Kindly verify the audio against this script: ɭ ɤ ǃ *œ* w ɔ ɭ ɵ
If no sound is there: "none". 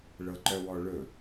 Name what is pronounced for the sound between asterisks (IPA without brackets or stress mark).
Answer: œ